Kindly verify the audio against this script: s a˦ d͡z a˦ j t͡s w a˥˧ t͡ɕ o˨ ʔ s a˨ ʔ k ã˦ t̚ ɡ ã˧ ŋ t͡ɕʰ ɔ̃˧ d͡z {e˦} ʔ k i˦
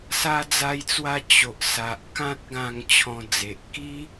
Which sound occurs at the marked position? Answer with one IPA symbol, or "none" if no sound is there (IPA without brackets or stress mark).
e˨